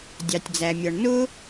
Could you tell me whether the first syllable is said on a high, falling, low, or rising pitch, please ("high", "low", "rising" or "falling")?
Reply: low